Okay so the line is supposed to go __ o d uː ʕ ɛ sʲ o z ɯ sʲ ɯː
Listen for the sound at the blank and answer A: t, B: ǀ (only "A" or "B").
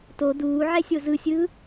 A